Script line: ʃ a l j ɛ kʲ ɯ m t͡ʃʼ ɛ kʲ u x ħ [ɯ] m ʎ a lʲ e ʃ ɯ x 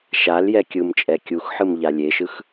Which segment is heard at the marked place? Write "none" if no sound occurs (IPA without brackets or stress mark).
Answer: ɯ